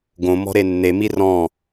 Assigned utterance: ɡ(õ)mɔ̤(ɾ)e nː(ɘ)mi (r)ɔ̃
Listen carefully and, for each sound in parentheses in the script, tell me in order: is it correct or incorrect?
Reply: correct, correct, incorrect, correct

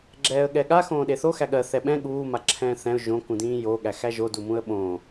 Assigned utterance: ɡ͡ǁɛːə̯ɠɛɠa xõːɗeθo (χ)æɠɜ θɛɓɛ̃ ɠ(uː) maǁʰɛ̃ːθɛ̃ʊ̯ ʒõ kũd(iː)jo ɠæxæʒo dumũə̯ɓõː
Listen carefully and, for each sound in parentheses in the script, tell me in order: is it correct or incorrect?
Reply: incorrect, correct, incorrect

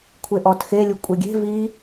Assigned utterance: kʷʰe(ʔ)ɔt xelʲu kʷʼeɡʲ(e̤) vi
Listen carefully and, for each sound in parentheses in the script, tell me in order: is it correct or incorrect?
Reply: correct, correct

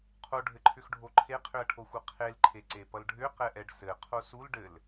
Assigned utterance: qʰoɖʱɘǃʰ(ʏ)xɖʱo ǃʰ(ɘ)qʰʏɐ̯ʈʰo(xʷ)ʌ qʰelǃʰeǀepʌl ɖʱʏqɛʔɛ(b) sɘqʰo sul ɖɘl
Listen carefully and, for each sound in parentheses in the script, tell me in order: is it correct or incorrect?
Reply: correct, incorrect, correct, incorrect

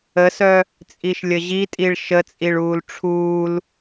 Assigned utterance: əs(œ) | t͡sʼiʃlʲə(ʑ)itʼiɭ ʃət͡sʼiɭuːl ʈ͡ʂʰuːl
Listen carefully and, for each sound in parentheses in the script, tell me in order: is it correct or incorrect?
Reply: correct, correct

